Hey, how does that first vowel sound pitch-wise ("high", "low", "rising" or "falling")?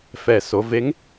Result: low